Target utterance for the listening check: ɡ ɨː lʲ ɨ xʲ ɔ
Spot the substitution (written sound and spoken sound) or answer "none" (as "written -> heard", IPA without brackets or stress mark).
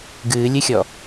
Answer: none